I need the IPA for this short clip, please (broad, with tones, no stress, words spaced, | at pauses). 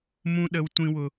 mũ˦ ɗə˦w tʷĩ˦wʊ˦